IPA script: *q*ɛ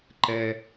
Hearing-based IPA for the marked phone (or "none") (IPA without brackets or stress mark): ǃ